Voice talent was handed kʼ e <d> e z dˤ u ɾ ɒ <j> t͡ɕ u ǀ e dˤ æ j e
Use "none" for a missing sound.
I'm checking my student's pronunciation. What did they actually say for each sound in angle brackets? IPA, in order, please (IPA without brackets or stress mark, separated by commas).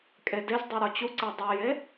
d, none